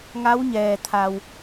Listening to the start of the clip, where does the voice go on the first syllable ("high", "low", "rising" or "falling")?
rising